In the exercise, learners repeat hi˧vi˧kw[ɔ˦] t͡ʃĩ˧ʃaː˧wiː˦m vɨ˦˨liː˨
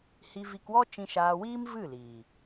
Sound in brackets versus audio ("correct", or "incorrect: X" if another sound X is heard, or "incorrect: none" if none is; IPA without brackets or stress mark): correct